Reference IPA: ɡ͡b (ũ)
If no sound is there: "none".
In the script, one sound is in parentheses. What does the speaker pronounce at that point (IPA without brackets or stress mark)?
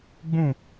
ũ